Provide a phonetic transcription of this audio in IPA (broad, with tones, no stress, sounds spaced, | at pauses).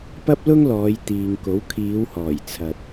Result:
p ɐ˥ p̚ l ʊ˥ ŋ l ɔː˨˧ j t̪ iː˨ ŋ k o˨˥ w kʰ iː˨˧ w h ɔː˨˩ j t͡sʰ ɐ˨ t̚